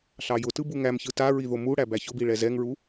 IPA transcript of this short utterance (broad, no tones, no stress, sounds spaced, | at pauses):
ɬ ɑ j ʊ t ɯ b u ŋ æ m ç ɯ t a ɹ i ð o m u ɽ æ b æ ç ʊ b i ɭ ɛ z ɛ ŋ ɹ u